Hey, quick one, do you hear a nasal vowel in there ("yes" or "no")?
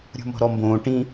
yes